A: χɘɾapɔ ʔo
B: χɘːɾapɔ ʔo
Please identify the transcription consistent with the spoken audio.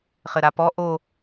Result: A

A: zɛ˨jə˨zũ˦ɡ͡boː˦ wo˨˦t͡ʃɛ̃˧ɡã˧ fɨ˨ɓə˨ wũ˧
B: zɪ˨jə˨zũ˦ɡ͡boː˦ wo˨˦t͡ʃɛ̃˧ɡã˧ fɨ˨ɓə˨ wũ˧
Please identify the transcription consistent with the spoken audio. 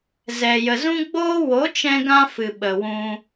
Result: A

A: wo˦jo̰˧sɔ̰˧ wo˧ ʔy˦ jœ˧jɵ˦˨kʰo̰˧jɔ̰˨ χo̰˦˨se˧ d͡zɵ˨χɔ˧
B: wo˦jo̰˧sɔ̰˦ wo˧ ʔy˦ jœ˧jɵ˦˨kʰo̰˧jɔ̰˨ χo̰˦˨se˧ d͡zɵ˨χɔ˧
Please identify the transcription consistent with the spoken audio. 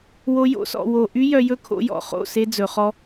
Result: A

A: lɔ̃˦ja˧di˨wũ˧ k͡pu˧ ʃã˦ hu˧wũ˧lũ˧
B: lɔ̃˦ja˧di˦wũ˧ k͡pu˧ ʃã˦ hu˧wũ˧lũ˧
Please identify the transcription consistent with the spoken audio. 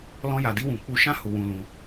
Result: B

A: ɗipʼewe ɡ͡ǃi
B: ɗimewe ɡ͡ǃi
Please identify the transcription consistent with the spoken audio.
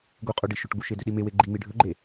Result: B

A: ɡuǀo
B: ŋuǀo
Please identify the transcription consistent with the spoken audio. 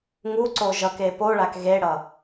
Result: B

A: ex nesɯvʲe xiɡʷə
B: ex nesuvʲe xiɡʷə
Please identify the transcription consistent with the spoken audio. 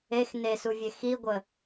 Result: B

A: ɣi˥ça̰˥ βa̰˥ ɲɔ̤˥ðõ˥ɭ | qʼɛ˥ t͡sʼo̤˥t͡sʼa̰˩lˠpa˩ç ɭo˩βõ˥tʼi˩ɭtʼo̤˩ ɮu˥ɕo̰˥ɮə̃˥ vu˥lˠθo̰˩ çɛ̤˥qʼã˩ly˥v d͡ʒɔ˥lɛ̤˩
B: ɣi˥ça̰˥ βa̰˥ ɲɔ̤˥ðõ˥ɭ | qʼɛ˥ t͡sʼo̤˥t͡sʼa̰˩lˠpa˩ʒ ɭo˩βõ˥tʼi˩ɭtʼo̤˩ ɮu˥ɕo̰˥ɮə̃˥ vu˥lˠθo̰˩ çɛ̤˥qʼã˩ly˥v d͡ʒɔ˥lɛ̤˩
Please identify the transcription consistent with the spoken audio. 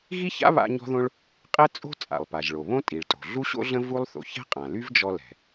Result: B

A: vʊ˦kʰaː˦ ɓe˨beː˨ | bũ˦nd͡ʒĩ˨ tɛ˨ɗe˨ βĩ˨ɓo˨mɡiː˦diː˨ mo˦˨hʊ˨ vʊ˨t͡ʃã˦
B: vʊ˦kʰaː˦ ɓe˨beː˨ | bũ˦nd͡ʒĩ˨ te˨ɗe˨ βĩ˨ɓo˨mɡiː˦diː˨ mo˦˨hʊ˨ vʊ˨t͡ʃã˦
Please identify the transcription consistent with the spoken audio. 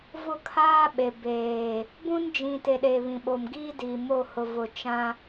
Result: B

